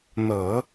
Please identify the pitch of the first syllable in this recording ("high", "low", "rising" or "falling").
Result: low